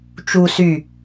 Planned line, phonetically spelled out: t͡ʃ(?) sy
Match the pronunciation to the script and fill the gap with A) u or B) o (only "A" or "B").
A